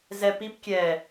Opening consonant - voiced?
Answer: yes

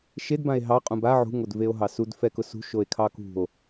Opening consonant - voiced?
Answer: no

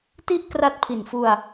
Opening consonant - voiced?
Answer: no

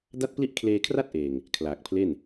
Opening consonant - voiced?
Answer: yes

